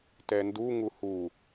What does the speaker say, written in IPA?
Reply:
t ɛ n d u ŋ u h u

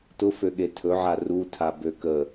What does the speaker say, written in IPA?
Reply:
t ʊ f ø ɠ e tʰ ɵ ʕ a r u tʰ a b ø k ə

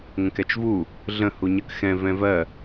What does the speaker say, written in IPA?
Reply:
ŋ ə̃ k ɛ t͡ʃ v u | ɮ ə̃ h u ɲ ə k x ɛ̃ v ɛ̃ v ɜ

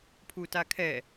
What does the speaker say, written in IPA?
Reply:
pʰ u t a kʰ ɛ

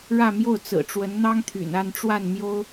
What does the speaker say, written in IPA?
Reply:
ɻ ä˥˧ m j o˥˩ ʊ̯ t͡s ɹ̩˨˩ ʈ͡ʂ w ə˧˥ n n̪ ɑ˥ ŋ t̪ʰ y̰˨˩ n a˥˧ n ʈ͡ʂ w a˥˩ n m j o˥ ʊ̯

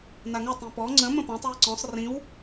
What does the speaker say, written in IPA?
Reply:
n̪ a ŋ ə tˤ ĩ p ɔ ŋ͡ǀ ə̃ m ə̃ p ɔ̃ tˤ w i ǀ ɔ̃ sˤ r ĩ w

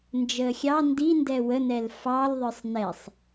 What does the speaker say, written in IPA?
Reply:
n d͡ʒ əː xʲ ɑ n d i n d ɛ w ə n ɛ l f ɑ l ðˤ ə˞ sˤ n ɛ sˤ

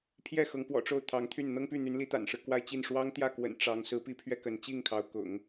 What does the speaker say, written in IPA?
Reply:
pʰ j ɛ˥˩ x ɤ˧˥ ŋ p w ɔ̰˨˩ ʈ͡ʂ o˥˩ ʊ̯ t̪ʰ ɑ˧˥ ŋ t̪ʰ y˥˩ n n̪ ɤ˥ ŋ p y˥˩ n̪ y˧˥ n l i˧˥ t̪ a̰˨˩ n ʂ ɻ̩˦ k w a˥˧ ɪ̯ t͡ɕ i˥˩ n ʂ w ɑ˥ ŋ t̪ j ä˥˩ k w ə̰˨˩ n ʈ͡ʂ ɑ˧˥ ŋ s ɹ̩˧˥ p i˥ pʰ ɥ ɛ˥˩ k ə˧˥ n t͡ɕ i˥˩ ŋ kʰ ɑ˧˥ ʊ̯ k ʊ̰˨˩˦ ŋ

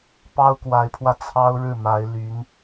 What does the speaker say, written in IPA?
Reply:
p ɑ˥ ʊ̯ k w a˧˥ ɪ̯ pʰ w ä˧ t͡sʰ ɑ˥ ʊ̯ ɻ ɻ̩˥˩ m a˧˥ ɪ̯ l y˧˥ n

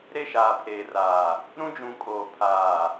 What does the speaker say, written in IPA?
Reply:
ɾ e˦˨ ʃ aː˨ pʰ eː˨ r aː˨ | ɾ ũ˦ d͡ʒ ũ˨˦ kʼ oː˨ pʰ aː˨

